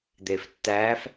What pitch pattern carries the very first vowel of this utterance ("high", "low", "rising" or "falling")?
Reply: low